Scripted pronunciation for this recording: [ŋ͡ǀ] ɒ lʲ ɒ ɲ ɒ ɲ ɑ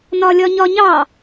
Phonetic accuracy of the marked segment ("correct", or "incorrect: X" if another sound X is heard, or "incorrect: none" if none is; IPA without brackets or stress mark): incorrect: n